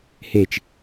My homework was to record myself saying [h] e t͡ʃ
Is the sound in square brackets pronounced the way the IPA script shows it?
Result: yes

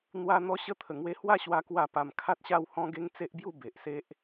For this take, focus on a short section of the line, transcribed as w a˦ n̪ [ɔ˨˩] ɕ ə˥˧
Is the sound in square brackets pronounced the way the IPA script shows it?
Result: no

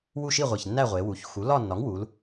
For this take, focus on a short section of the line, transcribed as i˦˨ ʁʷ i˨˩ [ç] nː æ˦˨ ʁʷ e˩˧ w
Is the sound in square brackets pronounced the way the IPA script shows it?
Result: yes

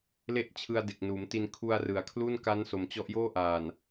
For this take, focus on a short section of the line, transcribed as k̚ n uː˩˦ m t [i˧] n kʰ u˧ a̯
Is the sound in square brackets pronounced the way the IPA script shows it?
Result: yes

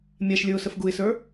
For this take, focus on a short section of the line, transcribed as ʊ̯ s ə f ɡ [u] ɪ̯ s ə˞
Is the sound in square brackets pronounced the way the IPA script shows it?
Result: yes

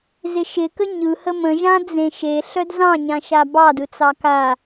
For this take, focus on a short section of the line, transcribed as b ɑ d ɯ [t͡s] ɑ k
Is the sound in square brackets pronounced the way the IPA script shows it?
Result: yes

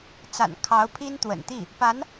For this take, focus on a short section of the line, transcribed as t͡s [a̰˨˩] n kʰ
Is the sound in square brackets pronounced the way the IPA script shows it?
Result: yes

